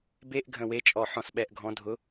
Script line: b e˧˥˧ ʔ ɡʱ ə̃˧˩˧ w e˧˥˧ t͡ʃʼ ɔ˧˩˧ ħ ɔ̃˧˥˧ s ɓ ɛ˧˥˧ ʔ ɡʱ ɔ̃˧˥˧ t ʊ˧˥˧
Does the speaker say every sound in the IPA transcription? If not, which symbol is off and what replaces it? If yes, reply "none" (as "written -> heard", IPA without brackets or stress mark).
t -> dʱ